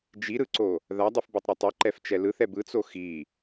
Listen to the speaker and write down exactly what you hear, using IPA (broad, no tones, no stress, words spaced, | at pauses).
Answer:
d͡ʒiɾɯǀo | ðadˤufbetˤɾɯ tˤɯǃɛft͡ʃɛ lɯθɛ bɯt͡so xi